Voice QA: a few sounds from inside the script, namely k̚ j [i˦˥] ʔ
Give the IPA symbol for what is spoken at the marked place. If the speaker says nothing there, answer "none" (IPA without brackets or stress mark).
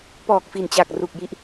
i˦˥